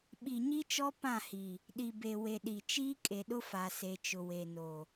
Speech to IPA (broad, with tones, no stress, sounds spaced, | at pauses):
ɓ i˨ ɲ i˦ t͡ʃ ɔ˦ p ã˦˨ h i˨ | ɗ i˨ b e˨ w e˨ ɗ i˨ t͡ʃ iː˦ kʼ e˨ ɗ ʊ˦ f a˨ s e˨ t͡ʃ ʊ˨ w e˨ n o˨